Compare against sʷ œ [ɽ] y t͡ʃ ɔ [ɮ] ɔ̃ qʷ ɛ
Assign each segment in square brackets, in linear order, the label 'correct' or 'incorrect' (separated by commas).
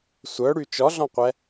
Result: correct, correct